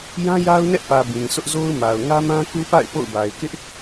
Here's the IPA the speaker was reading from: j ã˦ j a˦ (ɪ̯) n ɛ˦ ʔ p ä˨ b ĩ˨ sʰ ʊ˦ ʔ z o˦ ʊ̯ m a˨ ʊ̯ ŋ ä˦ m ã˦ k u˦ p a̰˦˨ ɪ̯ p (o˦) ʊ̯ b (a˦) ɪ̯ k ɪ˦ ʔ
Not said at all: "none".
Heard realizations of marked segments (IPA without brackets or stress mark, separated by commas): ʊ̯, o̰˦˨, a˨